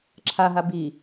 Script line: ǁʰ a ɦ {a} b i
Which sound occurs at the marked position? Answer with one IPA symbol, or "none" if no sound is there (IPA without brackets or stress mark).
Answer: a